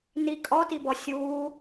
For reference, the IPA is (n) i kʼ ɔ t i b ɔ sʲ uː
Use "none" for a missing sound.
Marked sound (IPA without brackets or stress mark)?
n